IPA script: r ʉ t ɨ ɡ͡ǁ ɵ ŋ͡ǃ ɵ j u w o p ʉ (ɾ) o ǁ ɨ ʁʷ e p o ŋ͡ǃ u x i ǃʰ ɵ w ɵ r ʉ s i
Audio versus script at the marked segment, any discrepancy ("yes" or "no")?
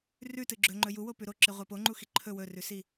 no